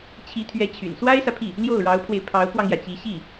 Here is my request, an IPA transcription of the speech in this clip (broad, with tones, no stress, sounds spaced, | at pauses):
t͡ɕʰ i˧˥ t̪ʰ ɥ ɛ˧˥ t͡ɕʰ y̰˨˩ n s w a˥ ɪ̯ s ä˨ pʰ i˥˩ | l j o˥˩ ʊ̯ ɻ ɑ˧˥ ʊ̯ pʰ w e˧ ɪ̯ pʰ ɑ˧˥ ʊ̯ k w ɑ˧ ŋ j ä˩ t͡ɕ i˧˥ ɕ i˥˩